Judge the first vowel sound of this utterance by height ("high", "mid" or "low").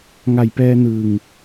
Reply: low